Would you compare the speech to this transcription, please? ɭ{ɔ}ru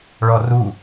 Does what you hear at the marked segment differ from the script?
no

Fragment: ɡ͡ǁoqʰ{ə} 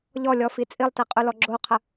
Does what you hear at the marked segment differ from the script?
no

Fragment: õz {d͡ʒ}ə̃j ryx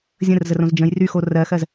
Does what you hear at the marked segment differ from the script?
no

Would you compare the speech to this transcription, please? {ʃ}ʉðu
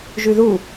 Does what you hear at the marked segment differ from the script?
yes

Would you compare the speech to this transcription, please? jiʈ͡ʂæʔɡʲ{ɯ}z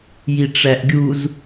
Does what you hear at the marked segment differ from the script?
yes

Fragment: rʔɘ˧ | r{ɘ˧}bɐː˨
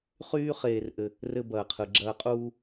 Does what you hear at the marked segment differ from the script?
no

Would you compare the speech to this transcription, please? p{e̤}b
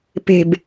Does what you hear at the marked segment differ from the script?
no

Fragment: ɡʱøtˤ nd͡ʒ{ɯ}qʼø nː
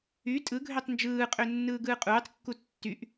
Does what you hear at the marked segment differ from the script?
yes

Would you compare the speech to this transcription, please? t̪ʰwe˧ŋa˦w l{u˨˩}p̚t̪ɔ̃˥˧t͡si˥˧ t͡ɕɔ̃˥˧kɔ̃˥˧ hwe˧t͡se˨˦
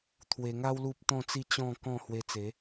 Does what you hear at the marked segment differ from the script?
yes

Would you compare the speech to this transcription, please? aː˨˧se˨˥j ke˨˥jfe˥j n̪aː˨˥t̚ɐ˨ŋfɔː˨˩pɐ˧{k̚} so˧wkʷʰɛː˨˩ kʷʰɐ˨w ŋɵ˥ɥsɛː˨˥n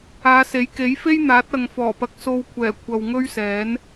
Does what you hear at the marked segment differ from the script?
no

